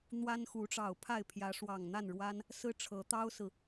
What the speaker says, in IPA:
n̪ w a˦ n x u˨˦ ʈ͡ʂ ɑ˨˩ ʊ̯ pʰ a˥˨ ɪ̯ pʰ j ä˨˦ ʂ w ɑ˨˩ ŋ n̪ a˥˨ n ɻ w a˦ n | s ɹ̩˦ ʈ͡ʂʰ ɤ˨˦ t̪ ɑ˦ ʊ̯ s ɹ̩˨

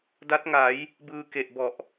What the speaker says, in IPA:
d a˦˥ t̚ ŋ a˩˦ j | b ɯː˧ k e˨˩ ʔ b ɔ˨˩ ʔ

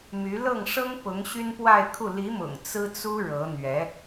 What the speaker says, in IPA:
m y˧˥ l ɤ˥˩ ŋ ʂ ɤ˥ ŋ p ʊ˧˥ ŋ ɕ y˥ n p w a˥˧ ɪ̯ kʰ u˥˩ l i˧˥ m ʊ̰˨˩ ŋ t͡s ɹ̩˥ t͡s u˥ ɻ ɤ˧˥ n̪ ɥ ɛ˧˥

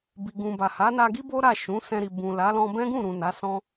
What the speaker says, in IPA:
b i˧ ɡ ũ˧ b a˨ h a˨˦ n a˧ ɡ i˦ b o˦ ɾ a˦˨ ʃ ũ˨˦ s ɛ̃˧ ɾ i˨ b ũ˨ l a˨˦ l ɔ̃˧ b ɛ̃˦ ɡ ũ˦˨ ɾ ũ˨ n a˨˦ s ɔ̃˦

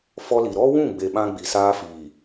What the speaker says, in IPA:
f ɔ˦ l i˨ ɾ ɔ˦ w ũ˦˨ ɡ͡b e˨ ɓ ã˦ ɡ͡b i˨ s aː˦ f iː˨

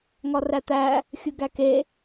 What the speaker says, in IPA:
ŋ ɒ r æ t̪ æ | xʲ u ɡ æ k e

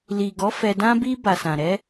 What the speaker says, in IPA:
l i˨ ɡ ɔ˨˦ f ɛ˧ d ã˦ b i˦ b a˧ s ã˨ ɾ ɛ˨˦

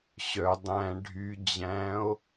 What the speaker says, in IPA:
ɕ œ dˤ æ̃ ɖʱ y d͡ʑ æ̃ o̯

